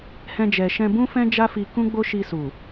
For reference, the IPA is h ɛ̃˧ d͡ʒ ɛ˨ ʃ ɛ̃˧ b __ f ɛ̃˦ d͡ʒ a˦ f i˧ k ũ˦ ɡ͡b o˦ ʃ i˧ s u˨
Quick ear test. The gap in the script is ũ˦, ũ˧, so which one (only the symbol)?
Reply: ũ˦